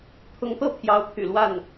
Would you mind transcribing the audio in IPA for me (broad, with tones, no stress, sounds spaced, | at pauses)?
t̪ʰ ʊ˧˥ ŋ t̪ ɤ˥˩ pʰ j ɑ˧˥ ʊ̯ pʰ y̰˨˩ l w a˥˩ n